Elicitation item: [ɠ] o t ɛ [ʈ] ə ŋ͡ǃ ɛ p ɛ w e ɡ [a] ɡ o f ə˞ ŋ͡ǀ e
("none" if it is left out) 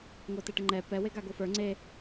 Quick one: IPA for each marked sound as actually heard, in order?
ŋ, ʈ, a

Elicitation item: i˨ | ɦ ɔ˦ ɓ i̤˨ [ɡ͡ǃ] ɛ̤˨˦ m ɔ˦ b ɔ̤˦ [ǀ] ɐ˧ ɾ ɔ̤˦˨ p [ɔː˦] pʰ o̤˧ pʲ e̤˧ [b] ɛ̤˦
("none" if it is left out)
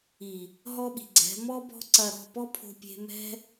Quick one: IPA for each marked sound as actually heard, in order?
ɡ͡ǀ, ǀ, ɔ˦, m

